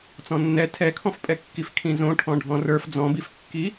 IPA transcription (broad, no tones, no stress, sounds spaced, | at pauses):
t͡s ɔ̃ nː ɛ tʰ ɛ kʰ ɔ̃ f pʼ ɛ kː i f kʰ ĩ z õ ʈʰ ɔ̃ ɖʱ ɔ̃ r ə˞ f d͡z ɔ̃ b i f kː i